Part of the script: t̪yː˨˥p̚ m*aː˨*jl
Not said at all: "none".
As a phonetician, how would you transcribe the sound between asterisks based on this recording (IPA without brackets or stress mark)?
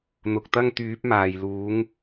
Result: aː˨